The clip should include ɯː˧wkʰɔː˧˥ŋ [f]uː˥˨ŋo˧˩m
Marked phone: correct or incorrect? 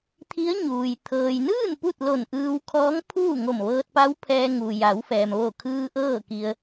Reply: incorrect